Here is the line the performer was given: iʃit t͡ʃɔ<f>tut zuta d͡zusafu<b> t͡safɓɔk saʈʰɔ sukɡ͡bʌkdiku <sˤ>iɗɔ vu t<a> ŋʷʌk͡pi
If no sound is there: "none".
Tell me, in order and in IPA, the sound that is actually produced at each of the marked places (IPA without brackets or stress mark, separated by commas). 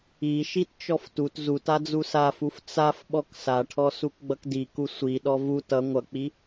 f, f, sʷ, ʌ